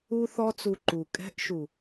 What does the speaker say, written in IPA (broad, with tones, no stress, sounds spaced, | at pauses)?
u˧ θ ɔ˧ t͡s u˨ ǃ u˨ kʼ ɛ̤˨˦ ʔ ʃ u˨